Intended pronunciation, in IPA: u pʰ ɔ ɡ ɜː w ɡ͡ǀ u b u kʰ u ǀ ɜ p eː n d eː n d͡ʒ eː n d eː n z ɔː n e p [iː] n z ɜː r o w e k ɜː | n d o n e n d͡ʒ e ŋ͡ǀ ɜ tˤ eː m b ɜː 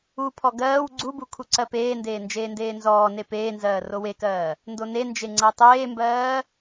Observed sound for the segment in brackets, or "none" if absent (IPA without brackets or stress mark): eː